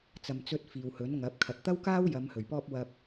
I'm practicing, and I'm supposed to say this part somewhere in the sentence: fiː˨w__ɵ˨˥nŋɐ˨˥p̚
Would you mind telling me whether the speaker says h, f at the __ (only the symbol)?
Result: h